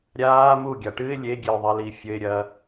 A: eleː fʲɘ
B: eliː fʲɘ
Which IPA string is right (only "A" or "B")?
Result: B